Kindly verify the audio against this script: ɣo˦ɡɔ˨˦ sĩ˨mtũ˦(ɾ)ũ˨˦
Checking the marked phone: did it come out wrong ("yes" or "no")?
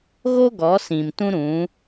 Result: no